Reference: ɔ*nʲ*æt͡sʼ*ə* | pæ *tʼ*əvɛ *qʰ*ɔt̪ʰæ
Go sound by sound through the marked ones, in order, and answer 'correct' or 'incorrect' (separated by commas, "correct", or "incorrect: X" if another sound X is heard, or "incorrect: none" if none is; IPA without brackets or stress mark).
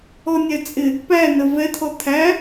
correct, incorrect: ɪ, incorrect: n, incorrect: t̪ʰ